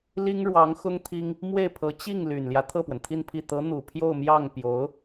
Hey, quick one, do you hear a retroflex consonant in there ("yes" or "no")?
yes